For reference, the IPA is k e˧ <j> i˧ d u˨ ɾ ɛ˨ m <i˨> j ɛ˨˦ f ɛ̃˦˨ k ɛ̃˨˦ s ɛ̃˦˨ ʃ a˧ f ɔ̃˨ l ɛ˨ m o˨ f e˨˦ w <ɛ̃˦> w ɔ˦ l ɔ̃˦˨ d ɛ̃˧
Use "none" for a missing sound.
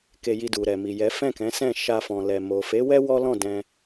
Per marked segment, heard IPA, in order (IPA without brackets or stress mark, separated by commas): j, i˨, ɛ˦